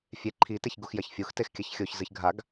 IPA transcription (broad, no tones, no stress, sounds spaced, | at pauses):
fʲ e ǃʰ i t e ç ɡ u x j ɐ ç fʲ u x t e x kʲ ɐ ç xʲ o ç z ɨ ç ɡʱ a ɡ